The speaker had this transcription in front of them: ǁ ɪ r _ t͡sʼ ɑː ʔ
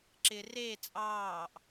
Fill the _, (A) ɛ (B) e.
B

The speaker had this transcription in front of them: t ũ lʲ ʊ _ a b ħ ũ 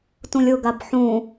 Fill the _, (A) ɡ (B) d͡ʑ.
A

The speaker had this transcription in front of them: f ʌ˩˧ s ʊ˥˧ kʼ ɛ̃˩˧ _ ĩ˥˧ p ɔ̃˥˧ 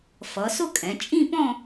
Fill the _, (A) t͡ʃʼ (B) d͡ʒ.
A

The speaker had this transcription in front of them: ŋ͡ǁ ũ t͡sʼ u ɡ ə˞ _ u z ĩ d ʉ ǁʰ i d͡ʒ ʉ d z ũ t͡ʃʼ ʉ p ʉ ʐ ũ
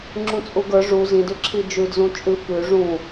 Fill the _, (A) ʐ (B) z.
A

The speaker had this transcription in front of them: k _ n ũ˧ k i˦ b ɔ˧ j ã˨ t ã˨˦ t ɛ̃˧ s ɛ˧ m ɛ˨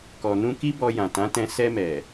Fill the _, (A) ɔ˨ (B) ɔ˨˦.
A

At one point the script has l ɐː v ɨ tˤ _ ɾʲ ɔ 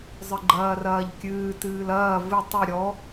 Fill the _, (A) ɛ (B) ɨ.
B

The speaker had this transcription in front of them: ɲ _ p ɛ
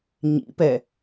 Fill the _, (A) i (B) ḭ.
B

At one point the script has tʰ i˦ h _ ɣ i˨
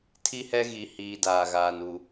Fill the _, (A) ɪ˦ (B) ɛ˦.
B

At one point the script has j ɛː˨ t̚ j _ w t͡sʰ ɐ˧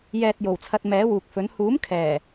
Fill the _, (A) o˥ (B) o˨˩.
B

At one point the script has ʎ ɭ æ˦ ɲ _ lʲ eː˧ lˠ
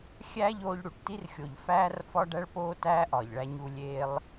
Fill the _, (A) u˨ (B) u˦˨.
B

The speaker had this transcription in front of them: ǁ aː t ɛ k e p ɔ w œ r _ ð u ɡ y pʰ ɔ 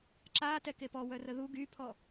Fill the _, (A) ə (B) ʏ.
A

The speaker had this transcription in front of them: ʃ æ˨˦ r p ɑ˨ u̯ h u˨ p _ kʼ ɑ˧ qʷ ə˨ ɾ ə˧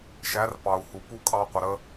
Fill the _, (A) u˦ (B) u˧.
A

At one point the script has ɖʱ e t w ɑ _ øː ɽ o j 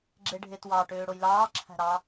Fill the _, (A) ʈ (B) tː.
A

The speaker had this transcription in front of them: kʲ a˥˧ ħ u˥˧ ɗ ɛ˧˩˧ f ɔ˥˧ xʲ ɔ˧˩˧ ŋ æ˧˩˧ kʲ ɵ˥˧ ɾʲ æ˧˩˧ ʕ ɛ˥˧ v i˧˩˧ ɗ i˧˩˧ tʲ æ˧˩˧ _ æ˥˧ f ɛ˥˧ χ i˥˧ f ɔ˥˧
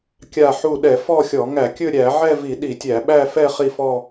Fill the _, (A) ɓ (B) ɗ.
A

